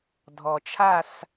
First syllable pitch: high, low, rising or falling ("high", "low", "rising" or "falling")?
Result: low